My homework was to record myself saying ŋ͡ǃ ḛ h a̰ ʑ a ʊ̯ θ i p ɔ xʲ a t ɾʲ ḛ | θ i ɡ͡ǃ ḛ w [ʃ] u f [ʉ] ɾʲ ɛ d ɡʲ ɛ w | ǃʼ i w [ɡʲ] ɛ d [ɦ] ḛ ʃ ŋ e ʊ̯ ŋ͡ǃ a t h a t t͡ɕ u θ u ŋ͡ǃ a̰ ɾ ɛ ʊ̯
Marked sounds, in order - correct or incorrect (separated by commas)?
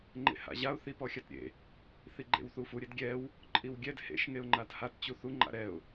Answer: incorrect, incorrect, correct, incorrect